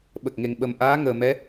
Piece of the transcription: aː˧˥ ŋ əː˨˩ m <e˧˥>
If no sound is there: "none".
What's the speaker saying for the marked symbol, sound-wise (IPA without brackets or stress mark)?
ɛ˧˥